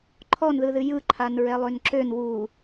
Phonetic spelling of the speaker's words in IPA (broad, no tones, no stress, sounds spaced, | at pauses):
ǃʰ ɔ n ð ɯ ð ɨ j ɯ ǃʰ a n ɹ ɛ lˠ ø n ǁ ø n w u